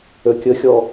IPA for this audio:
ø kʲ ə xʲ ɔ

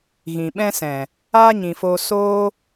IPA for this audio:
ɣ ĩ˨ ɓ ɛ̃˦ s ɛ̃˨ | aː˦ ɲ ĩ˨ f oː˧ s oː˧

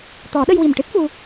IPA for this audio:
t̪ ɔ˨˩˦ ɗ ə˧ j w i˨˩ m ʈ ɨ˦˥ t̚ f u˧

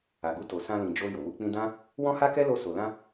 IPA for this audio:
a˨ ɡ u˧ t o˨ s ã˧ l ĩ˨ d͡ʒ o˧ j o˨ w u˧ k͡p ĩ˦ d ã˦ | w ɔ̃˦ h a˦ k ɛ˦ l o˧ s o˨ l ã˧

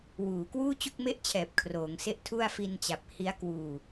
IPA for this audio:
w uː˩˦ k w uː˥˩ t͡ɕ u˥˩ k̚ m e˥˩ ʔ t͡ɕʰ ɛː˨˩ p̚ kʰ r oː˩˦ ŋ s e˥˩ ʔ tʰ u˥˩ a̯ f i˧ n t͡ɕ a˨˩ p̚ h i˦˥ a̯ k w uː˧

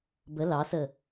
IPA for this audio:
b ə l ɑ s ə

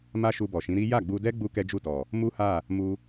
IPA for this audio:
m a˦ ʃ u˧ b ɔ˨ ʃ ĩ˨˦ ɾ i˦ j a˦˨ ɡ͡b u˧ d ɛ˦ ɡ͡b u˦ k ɛ˦ d͡ʒ u˦˨ t ɔ˨ | m u˦ h a˦˨ | m u˧

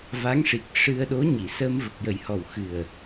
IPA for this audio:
v a˧˥ ŋ ʂ i˨˩ k̚ ʂ ɨ˧ ə̯ ɗ o˧˥ ɲ i˨˩˨ s ə˧ m v ə˨˩ k̚ j ə˨˩ j h ɔ˨˩ w x ɨ˨˩ ə̯

